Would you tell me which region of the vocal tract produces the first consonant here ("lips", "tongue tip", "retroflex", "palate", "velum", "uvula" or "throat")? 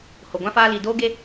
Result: throat